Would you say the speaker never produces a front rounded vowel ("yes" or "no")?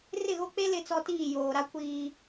yes